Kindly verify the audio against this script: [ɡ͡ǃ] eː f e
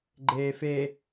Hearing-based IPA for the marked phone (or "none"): ɡ͡ǃ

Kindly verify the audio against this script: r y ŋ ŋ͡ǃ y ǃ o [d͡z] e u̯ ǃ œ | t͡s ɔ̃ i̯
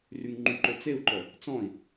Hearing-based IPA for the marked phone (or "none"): t͡s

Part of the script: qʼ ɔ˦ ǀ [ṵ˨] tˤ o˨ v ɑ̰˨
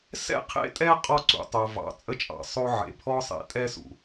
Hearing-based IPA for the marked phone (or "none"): ṵ˨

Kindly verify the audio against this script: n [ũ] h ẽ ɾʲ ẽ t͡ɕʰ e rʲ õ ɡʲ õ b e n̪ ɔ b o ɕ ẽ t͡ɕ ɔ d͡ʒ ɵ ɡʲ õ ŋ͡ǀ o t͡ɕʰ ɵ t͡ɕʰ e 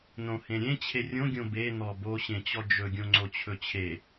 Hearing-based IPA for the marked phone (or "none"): õ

